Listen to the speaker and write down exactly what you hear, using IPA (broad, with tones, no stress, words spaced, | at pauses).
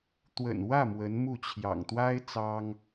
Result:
t̪wə̰˨˩nwä˥˩ mwə˧˥n mu˥˩t͡ɕʰjɑ̰˨˩ŋ t̪wa˥ɪ̯ t͡sɑ˥ŋ